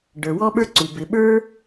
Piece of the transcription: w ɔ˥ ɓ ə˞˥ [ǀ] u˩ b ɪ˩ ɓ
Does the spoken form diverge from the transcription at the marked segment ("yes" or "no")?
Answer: no